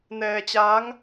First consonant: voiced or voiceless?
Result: voiced